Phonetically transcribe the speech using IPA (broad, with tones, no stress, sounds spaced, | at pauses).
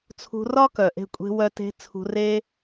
t͡sʰ ṳ˧ r ɒ˦ k œ˨ ʔ e̤˧ kʷʼ e̤˧ w œ˧ t e̤˧ t͡sʰ ṳ˧ r e˦